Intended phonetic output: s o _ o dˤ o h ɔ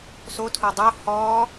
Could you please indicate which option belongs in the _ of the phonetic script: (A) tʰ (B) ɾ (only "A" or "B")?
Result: A